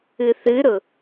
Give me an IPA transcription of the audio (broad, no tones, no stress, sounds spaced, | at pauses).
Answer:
ɨ θ ɨ ɾ ʊ